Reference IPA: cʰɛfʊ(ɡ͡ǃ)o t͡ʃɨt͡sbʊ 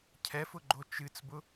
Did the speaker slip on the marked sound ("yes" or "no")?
no